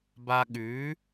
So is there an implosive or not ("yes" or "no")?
yes